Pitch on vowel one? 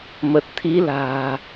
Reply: low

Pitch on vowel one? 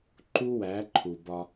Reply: high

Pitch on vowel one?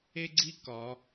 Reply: high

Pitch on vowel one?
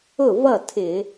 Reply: falling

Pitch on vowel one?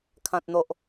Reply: high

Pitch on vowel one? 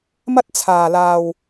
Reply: high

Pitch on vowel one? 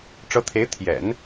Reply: rising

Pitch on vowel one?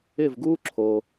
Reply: falling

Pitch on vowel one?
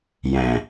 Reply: low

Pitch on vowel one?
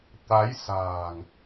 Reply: rising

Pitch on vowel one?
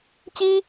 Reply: high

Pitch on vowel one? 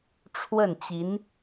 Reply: falling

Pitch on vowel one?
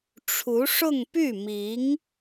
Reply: rising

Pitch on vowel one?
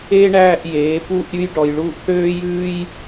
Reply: high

